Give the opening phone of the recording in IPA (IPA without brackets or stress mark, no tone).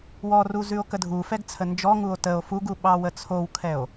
w